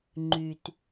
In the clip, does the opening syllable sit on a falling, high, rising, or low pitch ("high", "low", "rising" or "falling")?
low